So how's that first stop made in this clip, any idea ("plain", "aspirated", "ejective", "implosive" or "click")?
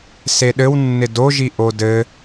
implosive